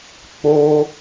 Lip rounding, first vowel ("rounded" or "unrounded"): rounded